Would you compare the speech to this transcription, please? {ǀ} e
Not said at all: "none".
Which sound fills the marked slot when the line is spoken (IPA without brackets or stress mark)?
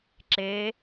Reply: ǁ